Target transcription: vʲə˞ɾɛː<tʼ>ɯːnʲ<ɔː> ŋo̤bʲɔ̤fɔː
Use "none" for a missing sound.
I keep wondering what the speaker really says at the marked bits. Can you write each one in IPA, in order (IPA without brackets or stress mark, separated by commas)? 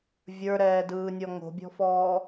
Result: d, ɔ